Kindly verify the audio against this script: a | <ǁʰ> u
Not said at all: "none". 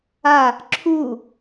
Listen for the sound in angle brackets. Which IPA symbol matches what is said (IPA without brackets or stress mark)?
ǁʰ